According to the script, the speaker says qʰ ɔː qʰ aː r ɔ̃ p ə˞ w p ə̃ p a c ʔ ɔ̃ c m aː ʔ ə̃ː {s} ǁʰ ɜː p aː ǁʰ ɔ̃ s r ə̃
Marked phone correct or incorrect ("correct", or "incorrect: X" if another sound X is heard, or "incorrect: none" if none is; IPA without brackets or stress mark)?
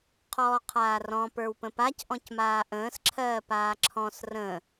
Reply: correct